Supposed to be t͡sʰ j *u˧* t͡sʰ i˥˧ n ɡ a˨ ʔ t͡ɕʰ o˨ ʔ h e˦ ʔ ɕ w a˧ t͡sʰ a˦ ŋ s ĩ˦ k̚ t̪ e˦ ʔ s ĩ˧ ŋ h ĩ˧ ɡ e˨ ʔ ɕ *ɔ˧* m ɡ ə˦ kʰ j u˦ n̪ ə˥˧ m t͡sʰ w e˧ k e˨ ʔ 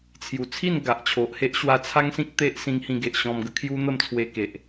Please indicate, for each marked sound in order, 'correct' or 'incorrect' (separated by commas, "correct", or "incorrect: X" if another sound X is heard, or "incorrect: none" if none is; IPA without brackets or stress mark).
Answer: incorrect: u˨˩, incorrect: ɔ̃˧